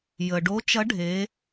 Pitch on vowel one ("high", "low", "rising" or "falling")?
low